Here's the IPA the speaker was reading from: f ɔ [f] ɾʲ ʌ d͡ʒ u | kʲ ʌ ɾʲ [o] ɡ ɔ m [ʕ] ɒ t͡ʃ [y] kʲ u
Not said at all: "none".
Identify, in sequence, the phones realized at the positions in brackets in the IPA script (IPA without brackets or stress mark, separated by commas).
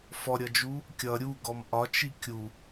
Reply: none, u, ʔ, i